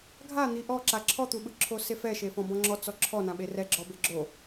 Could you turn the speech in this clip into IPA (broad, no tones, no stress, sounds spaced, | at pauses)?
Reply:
ɡʱ a n̪ i ʔ ɔ ǁ a ǁʰ ɔ t̪ u ɓ ɯ ǁʰ o s e f ɛ ʃ e f ɔ̃ b ɔ̃ ŋ͡ǁ ɔ t͡s ɔ ǁʰ ɔ n ã ɓ e r ɛ ɡ͡ǁ ɔ b e ɡ͡ǁ o